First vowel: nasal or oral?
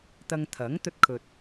oral